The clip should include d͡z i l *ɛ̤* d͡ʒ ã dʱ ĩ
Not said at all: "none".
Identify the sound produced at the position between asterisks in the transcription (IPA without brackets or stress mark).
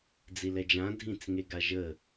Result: ɛ